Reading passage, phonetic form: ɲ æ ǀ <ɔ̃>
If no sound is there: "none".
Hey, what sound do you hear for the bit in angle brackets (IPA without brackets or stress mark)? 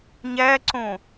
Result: õ